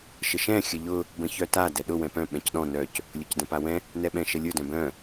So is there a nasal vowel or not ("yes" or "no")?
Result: yes